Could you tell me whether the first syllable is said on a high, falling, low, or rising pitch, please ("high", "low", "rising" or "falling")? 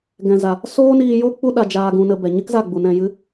low